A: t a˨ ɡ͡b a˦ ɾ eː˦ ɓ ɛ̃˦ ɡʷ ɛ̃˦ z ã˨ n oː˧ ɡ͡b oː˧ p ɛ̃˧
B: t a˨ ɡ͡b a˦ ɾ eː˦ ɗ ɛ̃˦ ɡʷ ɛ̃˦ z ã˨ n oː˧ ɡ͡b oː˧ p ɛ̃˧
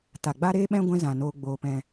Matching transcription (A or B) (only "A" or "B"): A